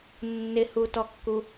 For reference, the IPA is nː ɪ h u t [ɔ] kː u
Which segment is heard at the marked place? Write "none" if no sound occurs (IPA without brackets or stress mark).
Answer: ɔ